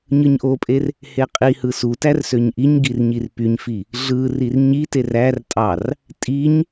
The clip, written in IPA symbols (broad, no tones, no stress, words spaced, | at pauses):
ɲɯɲʔopʼer | heqʼihɯ sutær søɲʔiɲɡir ɲirpyɲfi | ɮɯ rirɲiter ær tʼɑr | tʼiɲ